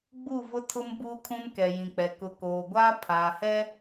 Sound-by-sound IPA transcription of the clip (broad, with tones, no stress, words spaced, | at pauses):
ɡ͡bu˦˨vʊ˦tʰʊ˦m buː˦kʰũ˦n kɛ˨jĩ˨k͡pɛ˨ kʊ˨koː˨ɡʷaː˦ pʰaː˨hɛ˦